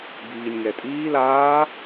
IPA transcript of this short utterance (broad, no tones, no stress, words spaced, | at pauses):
biːnʲŋɛtʼiːl aː